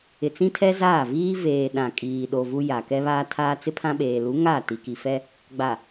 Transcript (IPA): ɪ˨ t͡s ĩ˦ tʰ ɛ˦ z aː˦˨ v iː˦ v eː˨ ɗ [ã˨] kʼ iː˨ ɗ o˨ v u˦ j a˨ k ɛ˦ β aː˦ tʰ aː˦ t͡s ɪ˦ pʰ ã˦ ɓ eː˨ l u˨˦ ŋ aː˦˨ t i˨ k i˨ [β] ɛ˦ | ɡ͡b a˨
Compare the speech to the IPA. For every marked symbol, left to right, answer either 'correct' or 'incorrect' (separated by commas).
correct, incorrect